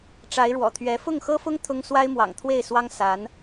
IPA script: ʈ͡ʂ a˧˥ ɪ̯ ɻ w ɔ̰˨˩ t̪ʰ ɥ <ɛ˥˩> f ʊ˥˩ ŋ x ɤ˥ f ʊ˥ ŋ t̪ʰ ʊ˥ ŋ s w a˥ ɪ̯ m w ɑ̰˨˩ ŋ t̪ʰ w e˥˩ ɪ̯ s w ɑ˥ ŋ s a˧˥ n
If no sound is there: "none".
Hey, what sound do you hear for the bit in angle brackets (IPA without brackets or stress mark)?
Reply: ɛ˧˥